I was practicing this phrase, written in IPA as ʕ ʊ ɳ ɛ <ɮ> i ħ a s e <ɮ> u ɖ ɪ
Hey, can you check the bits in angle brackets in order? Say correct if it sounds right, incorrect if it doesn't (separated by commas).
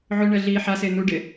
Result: correct, incorrect